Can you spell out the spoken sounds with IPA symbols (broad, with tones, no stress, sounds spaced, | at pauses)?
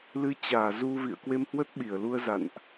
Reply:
l ɨ˧ t͡ɕ aː˧˩ z u˧ v ḭ˧˨ ə̯ k w e˧ m h w ə˦˥ t̚ ɓ i˧˩ ə̯ l u˧ ə̯ z a̰˧˨ n ʔ